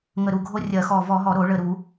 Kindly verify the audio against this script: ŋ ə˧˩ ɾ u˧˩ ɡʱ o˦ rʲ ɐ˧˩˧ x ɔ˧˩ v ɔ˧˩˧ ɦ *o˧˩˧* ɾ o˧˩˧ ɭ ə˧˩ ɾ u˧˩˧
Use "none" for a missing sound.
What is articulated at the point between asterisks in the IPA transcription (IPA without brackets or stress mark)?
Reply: ɔ˧˩˧